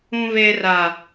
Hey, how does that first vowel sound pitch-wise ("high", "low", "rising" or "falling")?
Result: high